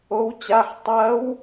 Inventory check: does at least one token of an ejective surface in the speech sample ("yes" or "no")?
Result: no